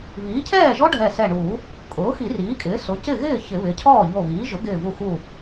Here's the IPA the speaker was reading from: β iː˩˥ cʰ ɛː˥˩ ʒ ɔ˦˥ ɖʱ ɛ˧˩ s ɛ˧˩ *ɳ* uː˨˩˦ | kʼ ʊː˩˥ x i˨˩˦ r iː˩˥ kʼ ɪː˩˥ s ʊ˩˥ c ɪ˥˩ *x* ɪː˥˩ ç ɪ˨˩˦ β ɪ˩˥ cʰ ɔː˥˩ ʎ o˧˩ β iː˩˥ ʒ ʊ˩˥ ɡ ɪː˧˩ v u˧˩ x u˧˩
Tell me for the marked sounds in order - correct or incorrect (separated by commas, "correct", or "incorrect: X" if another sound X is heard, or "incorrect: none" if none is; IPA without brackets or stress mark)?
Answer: correct, incorrect: ɣ